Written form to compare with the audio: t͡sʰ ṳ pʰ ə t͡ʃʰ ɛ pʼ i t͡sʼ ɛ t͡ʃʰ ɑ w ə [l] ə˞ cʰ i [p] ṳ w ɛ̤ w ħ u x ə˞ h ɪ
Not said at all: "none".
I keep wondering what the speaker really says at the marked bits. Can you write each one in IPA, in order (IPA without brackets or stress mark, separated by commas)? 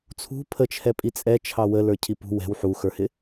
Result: l, p